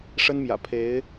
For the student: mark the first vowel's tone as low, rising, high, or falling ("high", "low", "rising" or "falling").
high